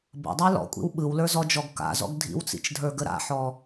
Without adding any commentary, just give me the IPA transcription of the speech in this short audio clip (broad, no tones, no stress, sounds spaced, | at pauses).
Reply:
b ə̰ dˤ a l ɔ̰ kʷʼ ḭ w ɓ ɯ w l ə˞ z ɔ d͡ʒ ɔ ɡ k a̰ z ɔ̰ ɡ dʱ ḭ w t͡s ḭ t͡ʃ dʱ ə˞ ɡ ə ɾ a̰ ħ ɔ